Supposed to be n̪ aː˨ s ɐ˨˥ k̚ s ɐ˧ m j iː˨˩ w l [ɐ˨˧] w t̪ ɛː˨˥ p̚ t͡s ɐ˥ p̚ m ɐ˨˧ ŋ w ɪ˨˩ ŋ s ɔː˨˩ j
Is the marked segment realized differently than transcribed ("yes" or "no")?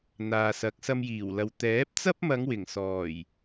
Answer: yes